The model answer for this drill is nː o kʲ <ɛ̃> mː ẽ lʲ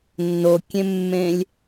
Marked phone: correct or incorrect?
incorrect